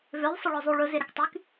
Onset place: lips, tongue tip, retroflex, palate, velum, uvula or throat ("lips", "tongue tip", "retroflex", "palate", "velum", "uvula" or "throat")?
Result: lips